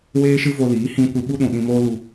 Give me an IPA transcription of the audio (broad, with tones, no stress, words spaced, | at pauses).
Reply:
weː˦ʃɨ˦vo˧liː˨˦ hĩ˦ kʷɨ˧ɓu˦ɗũ˨ ɗĩ˧moː˦ lu˧